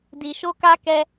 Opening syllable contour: low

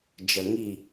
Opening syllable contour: low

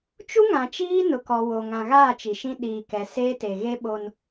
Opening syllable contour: high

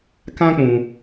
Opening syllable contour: high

